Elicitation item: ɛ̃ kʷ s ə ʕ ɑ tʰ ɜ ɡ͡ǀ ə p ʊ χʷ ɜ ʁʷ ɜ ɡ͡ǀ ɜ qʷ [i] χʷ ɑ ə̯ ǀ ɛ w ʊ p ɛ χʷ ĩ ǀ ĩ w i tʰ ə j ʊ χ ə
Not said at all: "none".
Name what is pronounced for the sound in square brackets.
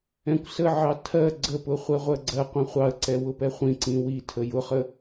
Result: ĩ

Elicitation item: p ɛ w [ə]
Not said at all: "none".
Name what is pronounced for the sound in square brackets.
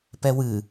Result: ɨ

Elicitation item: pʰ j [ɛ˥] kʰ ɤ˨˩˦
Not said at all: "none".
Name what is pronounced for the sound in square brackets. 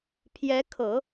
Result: ɛ˧˥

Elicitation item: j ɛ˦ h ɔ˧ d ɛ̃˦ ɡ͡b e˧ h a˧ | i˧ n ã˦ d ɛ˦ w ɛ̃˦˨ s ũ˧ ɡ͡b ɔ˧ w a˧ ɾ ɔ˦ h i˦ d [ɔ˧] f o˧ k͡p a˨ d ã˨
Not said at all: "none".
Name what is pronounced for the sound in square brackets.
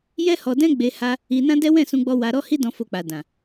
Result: ɔ̃˧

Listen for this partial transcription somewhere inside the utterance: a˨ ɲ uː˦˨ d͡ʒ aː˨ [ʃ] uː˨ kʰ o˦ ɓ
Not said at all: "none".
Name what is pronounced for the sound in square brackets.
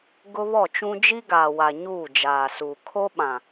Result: s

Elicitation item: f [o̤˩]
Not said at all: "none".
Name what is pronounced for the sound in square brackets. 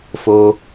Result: o˩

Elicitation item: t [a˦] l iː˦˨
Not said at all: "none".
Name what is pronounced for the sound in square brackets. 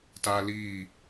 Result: a˦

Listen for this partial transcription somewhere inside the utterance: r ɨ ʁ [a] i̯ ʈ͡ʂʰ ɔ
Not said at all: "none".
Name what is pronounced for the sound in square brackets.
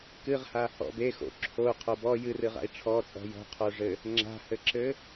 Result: a̰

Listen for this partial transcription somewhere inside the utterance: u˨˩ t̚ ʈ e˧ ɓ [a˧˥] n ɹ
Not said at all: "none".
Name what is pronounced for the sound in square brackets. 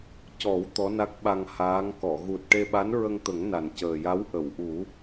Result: a˧˥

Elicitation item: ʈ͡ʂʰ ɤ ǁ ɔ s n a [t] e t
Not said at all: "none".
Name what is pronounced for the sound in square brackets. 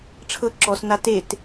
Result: t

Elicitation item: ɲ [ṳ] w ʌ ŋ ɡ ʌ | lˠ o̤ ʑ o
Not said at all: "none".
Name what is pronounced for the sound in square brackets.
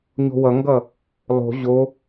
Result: o̤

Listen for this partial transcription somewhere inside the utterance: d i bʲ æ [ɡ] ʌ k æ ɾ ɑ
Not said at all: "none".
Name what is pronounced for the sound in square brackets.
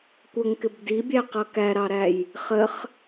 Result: q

